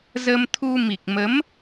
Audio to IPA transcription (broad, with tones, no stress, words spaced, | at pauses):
zə˧mt̪ʰu˧ mi˨˩k̚mə˨˦m